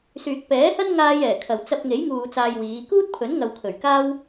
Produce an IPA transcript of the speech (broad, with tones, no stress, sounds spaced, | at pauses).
s yː˨ k̚ p ɛː˨˥ h ɐ˥ n ŋ aː˧ j ɛː˨˩ kʰ ɐ˨˩ w t͡s ɐ˧ p̚ ŋ e˨˥ j ŋ uː˨ t͡s aː˧ j w iː˨˧ k uː˥ t̚ pʰ ɵ˨˥ n ŋ ɐ˨ w kʰ ɵ˨˩ ɥ k aː˥ w